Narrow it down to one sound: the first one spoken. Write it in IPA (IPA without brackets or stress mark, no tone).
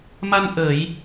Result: m